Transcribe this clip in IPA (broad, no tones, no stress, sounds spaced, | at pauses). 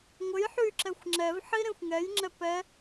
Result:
ŋʷ ɘ j ħ y ǁ ɛ xʷ ŋ͡ǁ ɛ v ħ i ɾ ẽ xʷ ŋ ɛ j ŋ͡ǁ ɛ p ɛ